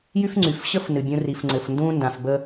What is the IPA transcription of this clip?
j y˥ f ŋ͡ǀ y˩ f ɕ ə˥ f n ɨ˩ bʲ ũ˧ r i˩ f ŋ͡ǀ ɘ˩ f n d ũ˥ n d ã˩ f b ə˧

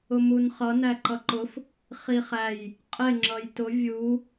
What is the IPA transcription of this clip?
ʊ m u n χ ʌ n æ ǃ ʌ ǃ ʊ f | χ i χ æ j | qʼ ɪ ŋ͡ǁ ʌ j t ʊ vʲ u

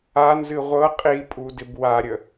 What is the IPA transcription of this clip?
a n z ɨ ʁʷ ɤ qʼ i pʼ u d ɪ b w a ɾʲ ə

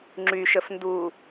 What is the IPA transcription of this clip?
ŋ͡ǁ y ʃ ə f n d u

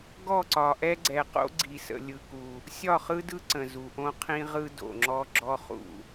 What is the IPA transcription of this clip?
ɡ ɔ˦˨ ǀ ɒ˨ ʔ ɛ˦ ɡ͡ǀ ɛ˨ q o̰˦ ɡ͡ǀ i˨ s ə̰˨ lʲ ɯ˦ k u˦ | sʲ ɒ˦˨ χ ɯ˦ d ɯ˦ ǀ ə̃˨ z u˨ ʔ õ˦ qʰ ĩ˦ ʁ ɯ˦ d o̰˨ ŋ͡ǁ ɔ˦ ɡ͡ǁ ɔ˦ χ ṵ˦˨

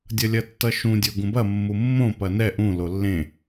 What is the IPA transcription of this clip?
dʲ ʌ lʲ ɐ tː ʌ ʃ ũ dʲ o ɡ ũ b ɐ mː u mː õ p ɐ n ɛ ʔ ũ l o lː ẽ

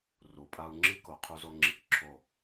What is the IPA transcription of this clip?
r u˨ pʼ a˧ u̯ ŋ͡ǁ i˦ k o˨ qʰ u˧ z o˧ ŋ͡ǁ i˧ k ǁʰ o˦˨

